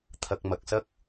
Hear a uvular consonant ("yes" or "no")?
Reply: no